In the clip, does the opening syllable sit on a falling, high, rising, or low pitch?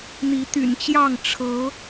rising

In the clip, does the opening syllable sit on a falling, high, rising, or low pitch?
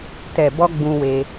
low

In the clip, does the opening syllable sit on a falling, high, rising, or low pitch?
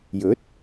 rising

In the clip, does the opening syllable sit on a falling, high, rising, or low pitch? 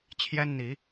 high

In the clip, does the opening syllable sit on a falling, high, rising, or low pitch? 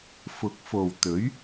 rising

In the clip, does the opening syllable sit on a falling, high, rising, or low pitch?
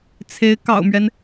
rising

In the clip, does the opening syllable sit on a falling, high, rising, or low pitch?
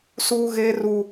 high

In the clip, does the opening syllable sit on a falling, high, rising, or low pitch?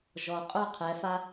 low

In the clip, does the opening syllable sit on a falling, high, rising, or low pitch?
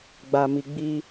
low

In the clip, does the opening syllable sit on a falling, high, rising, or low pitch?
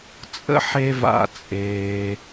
high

